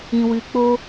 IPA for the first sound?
ĩ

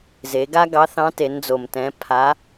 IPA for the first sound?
z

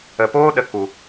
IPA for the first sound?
ə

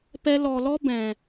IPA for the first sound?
p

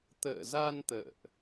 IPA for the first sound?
t̪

